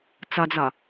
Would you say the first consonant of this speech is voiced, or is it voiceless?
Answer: voiceless